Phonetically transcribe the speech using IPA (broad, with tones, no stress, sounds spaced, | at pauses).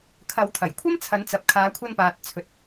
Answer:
kʰ ɐ˨˧ w t̪ʰ ɐ˨˩ j kʷʰ ɐ˥ m t͡sʰ ɐ˨˧ n t͡s ɐ˨ p̚ kʰ aː˨˧ kʷʰ ɐ˧ n p aː˨ t̚ t͡sʰ ɵ˨˥ t̚